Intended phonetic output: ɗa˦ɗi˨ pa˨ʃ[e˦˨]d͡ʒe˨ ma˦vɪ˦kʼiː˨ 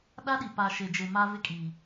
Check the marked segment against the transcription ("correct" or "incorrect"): incorrect